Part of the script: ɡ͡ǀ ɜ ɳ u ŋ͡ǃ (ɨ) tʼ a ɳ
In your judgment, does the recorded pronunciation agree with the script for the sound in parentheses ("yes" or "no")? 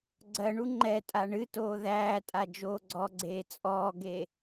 no